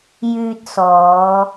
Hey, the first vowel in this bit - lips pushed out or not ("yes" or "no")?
yes